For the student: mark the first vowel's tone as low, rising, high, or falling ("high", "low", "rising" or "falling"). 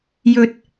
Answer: low